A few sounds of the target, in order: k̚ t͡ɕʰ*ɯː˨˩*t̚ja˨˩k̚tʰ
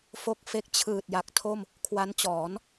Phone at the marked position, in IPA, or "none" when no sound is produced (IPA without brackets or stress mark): ɯː˨˩